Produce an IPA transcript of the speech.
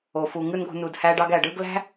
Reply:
o˨ fu˨ŋɯ˦nɡo̤˧ nu˨dhæ˧ɖɑ˧ɡ æ˨ɖɯ˧ɡlæ̤˦

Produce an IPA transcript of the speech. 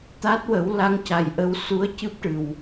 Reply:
t̪a˦˥t̚ wə˨˩˦w la˧˥ŋca˨˩jʔə˧w su˧˥ə̯cɨ˦˥p̚ʈɨ˨˩w

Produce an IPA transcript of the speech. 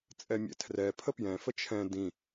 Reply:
t͡sʼɛmʲɛ̰tʰrɛ pʰəpjɛ̃ fət͡ʃʰɛ̃ dĩ

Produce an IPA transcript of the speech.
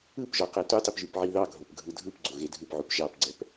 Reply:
ɯpʒɒ qetutˤip ʒypʕiðɑɡʱop ɡʱɯdʱɯpɡ͡ǀo ɣedʱɯpʕup ʒɑpɡ͡ǀɛp

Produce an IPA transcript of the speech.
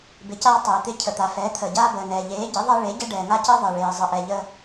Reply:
bɪ˩˥caː˦ tˤeː˩t̪ɪ˦ cʰə˩t̪a˩fɛː˩˥ t̪ʰəː˩ɟaː˦bəː˩nɛː˩ ʎeː˩˥ɟɪ˩˥ðˤɛ˦ ɭe˩˥ɟə˦ ɖɛː˩ŋa˦cəː˦ ðˤɪː˩ ɭeː˩zˤə˩ ʔɛ˩ʎə˦

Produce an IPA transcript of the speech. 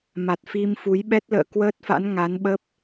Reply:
ma˨˩t̚fi˧mfu˨˦j ɓɛ˦˥t̚lə̰ː˧˨kwəː˦˥t̚fa̰˧˥n ŋa˨˦nɓə˦˥p̚

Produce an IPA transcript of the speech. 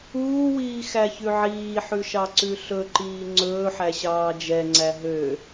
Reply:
uːwiːxæçʉ ʕiːħʉʃɑǀʉ ɬɵǃiː ŋ͡ǀɵːħæɕɑː d͡ʒɛŋ͡ǀæ ɦø

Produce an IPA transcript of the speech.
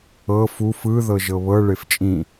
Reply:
ɤ fu fɯ ðɤʒɤβɤ ɭeft͡ʃʼĩ

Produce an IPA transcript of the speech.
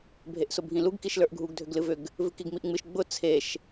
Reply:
bʱeʔsʊbʱĩluɡ kiʃlə˞ʔɡʱuɡ dʱʏɡlɨvʏɡ | vɨkiɡmiʔŋ͡mɨʃ ɡ͡bʊ t͡sʰeʃ

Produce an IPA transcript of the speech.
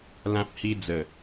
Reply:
lã˦p̚hi˦ d͡zə˥˧

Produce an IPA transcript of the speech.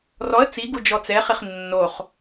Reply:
rɔə̯ t͡siɡu d͡ʒɔt͡sɛχiχ nːoχ

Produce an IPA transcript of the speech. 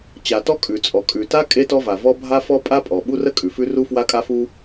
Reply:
t͡ɕa˩tɔ˥ kʼʉ˩t͡sʼɔ˩ kʼʉ˩ta˥ kʼe˥tɔ˥va˩vɔ˥ bʱa˥fɔ˥ pʼa˥pʼɔ˩ ɓu˥rə˥ kʼʉ˩fʉ˥ ru˥fwa˥kʼa˥fu˥

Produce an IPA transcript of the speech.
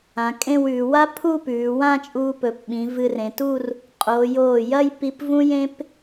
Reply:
ã˩˧kʼẽ˥˧wʉː˩˧ wa˥pʰu˥˧pʉː˩˧ wã˥˧t͡ʃʼuː˧pɵ˩˧pɓĩ˩˧ vɨ˧rẽ˩˧tuː˥˧r | qʼoː˩˧ joː˧˩jɐ˥˧jpi˧p vũ˥jẽ˥p

